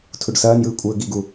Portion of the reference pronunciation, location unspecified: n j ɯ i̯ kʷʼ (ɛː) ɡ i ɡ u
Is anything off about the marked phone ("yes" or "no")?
yes